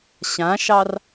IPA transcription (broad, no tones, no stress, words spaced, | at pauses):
ɕãʃɑr